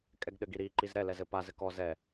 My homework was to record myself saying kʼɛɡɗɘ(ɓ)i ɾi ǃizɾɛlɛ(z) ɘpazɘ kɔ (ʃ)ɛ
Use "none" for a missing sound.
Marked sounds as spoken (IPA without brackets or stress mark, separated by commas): ɡ, z, z